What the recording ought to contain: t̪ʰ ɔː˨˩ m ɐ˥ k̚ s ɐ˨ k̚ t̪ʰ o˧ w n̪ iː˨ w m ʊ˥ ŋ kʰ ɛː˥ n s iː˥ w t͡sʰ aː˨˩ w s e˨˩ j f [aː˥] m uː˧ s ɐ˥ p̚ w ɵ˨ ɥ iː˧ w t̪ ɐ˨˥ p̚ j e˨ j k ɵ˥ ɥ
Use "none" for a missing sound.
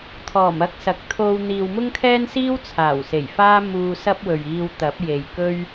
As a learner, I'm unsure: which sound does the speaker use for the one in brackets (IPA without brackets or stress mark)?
aː˥